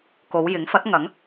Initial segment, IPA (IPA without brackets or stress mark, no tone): k